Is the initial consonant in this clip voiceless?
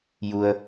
no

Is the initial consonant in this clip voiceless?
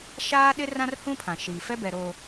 yes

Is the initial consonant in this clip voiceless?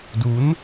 no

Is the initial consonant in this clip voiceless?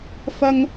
yes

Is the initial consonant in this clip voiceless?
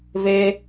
no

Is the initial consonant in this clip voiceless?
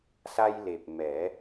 yes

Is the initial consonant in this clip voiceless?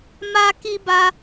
no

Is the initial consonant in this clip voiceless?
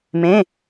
no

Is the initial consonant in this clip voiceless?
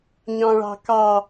no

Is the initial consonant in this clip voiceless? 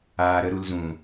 no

